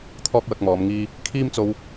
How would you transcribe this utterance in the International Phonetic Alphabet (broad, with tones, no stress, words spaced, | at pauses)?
t̪ʰɔː˥k̚wɐ˧k̚mɔː˨˧m ŋiː˧ | kʰiː˥mt͡so˧w